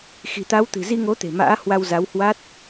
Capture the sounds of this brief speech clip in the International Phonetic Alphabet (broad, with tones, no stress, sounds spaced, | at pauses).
x i̤˨˩ t̪ a˨˦ w t̪ ɨ̤˨˩ z i˧ ŋ o˨˦ t̪ e̤˨˩ m a̰ː˧˥ h w a˧ w z a˨˦ w h w a˦˥ t̚